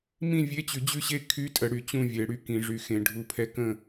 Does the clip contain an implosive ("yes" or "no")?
no